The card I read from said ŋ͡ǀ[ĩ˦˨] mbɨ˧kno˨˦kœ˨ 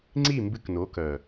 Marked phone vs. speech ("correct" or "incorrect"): incorrect